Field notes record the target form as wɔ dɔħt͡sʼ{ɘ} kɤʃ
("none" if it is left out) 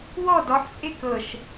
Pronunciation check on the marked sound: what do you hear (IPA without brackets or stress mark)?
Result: e